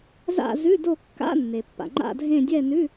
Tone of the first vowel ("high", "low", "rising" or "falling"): falling